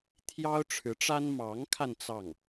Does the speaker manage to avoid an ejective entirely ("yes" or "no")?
yes